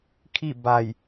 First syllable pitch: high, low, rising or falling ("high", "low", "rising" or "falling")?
falling